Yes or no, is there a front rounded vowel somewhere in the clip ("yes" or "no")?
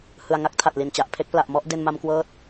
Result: no